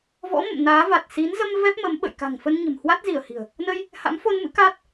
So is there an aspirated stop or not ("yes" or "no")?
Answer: no